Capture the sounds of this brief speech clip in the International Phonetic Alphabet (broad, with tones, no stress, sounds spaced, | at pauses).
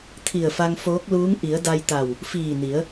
t̪ʰ i˧˩ ə̯ f a˧ ŋ f oː˧˥ k̚ l uː˧˥ ŋ ʔ i˩˧ ə̯ d a˧ j t̪ a˧˩ w | f iː˧˩ n i˩˧ ə̯